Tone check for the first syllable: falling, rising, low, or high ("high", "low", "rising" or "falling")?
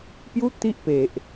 high